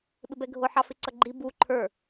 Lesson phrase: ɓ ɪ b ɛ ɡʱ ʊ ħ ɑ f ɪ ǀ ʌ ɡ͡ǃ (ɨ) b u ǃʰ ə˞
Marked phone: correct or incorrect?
incorrect: i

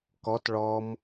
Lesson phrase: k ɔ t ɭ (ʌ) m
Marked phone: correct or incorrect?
incorrect: ɔ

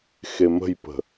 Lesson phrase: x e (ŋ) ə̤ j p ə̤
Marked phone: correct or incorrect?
incorrect: m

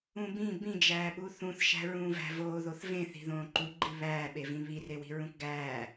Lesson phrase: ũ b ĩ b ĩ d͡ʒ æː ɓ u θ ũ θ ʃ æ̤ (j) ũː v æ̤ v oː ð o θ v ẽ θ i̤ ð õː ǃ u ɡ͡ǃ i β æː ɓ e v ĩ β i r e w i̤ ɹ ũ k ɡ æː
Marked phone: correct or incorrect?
incorrect: ɹ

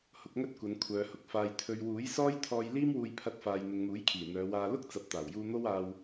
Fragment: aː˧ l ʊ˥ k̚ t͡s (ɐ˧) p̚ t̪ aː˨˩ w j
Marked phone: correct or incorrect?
incorrect: ɐ˨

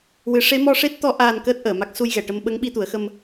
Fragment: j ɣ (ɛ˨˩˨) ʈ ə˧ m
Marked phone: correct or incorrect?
correct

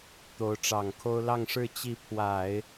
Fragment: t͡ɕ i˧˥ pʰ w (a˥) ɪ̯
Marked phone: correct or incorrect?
incorrect: a˨˩˦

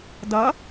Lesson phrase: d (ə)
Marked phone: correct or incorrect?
incorrect: ʌ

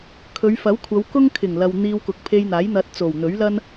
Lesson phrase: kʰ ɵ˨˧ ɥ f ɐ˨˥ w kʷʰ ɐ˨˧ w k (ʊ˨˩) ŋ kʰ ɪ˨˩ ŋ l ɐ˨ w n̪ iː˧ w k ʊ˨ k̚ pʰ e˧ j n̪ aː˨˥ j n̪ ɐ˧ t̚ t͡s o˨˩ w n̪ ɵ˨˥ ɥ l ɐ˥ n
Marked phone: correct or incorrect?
incorrect: ʊ˥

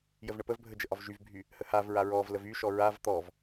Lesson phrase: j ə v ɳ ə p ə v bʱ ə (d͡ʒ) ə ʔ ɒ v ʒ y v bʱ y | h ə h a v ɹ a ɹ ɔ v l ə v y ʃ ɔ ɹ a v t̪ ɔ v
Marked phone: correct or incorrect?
correct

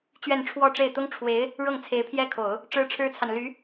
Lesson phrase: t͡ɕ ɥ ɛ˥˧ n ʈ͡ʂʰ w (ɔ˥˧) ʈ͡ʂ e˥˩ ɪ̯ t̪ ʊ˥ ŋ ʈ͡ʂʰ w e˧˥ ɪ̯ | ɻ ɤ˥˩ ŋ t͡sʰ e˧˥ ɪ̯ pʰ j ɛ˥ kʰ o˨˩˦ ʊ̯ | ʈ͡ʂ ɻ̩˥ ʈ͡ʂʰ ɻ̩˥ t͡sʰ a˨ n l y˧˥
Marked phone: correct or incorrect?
correct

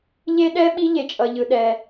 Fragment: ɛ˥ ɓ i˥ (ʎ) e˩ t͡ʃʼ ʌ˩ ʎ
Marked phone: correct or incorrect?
correct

